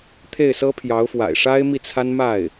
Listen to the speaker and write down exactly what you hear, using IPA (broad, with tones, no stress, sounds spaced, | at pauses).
t̪ʰ e˥˩ ɪ̯ s ɤ˥ pʰ j ɑ˧˥ ʊ̯ f w a̰˨˩ ɪ̯ ʂ a˥ ɪ̯ m i˥˩ t͡sʰ a˥ n m a˥˩ ɪ̯